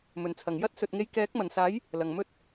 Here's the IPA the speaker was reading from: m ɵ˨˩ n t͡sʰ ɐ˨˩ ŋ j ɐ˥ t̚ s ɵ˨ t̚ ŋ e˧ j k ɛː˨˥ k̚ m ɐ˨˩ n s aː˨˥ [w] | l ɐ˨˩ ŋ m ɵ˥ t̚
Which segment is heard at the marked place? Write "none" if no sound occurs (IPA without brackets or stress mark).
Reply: j